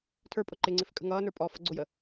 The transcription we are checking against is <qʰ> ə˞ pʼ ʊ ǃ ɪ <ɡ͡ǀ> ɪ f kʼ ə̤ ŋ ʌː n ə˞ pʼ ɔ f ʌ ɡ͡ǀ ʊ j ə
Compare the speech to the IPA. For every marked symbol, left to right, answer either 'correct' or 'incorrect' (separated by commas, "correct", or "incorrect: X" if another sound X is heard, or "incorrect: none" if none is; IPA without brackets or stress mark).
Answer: incorrect: tʰ, incorrect: ŋ͡ǀ